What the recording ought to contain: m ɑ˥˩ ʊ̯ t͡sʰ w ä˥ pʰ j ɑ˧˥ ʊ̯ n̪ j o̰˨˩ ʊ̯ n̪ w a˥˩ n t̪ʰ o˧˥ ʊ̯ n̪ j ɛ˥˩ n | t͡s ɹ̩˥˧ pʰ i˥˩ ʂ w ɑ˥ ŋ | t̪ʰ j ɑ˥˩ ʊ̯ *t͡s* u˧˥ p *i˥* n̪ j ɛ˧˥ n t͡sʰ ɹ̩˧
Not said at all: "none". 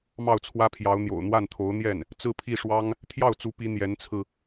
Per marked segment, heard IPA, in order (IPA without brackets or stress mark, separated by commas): t͡s, i˧˥